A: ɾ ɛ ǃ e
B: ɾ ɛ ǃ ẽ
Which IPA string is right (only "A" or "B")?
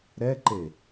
A